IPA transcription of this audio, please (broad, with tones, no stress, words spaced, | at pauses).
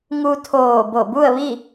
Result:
ŋu˧t̪ʰoː˧˩ bo˧˩bu˥˨ə̯ʋi˥˨